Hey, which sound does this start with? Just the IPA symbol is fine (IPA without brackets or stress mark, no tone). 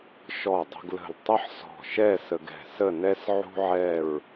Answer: ʃ